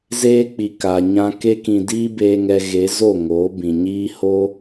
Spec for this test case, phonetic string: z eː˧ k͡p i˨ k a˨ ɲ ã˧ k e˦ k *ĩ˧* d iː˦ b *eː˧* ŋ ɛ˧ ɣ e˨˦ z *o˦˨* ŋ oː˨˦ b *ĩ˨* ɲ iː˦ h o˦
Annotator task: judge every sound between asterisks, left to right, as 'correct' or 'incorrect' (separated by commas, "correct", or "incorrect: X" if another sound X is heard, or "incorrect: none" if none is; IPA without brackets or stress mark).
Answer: correct, correct, correct, correct